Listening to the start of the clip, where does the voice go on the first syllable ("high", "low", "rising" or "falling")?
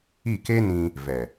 falling